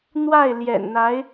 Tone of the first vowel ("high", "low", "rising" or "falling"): falling